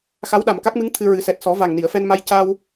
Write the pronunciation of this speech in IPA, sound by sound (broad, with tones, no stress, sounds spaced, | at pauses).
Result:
x a˧˥ w ɗ a˨˩ m k a˦˥ k̚ m ɨ˧˥ ŋ t̪ʰ ɨ˧ ɹ ɨ˨˩˦ s ɛ˨˩ t̚ s ɔ˨˩˦ v a˨˩ ŋ n i˨˩˨ ə̯ f ɛ˧ n m a˧ j c a˧ w